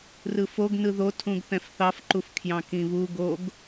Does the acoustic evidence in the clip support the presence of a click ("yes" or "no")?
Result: yes